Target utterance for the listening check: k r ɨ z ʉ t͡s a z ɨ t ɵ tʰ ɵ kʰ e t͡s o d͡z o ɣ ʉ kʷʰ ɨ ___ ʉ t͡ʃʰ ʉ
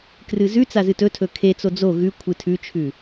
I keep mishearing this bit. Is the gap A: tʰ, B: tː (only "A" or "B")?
A